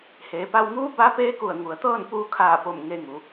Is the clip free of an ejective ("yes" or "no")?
yes